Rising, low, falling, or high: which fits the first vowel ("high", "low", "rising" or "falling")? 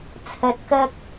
rising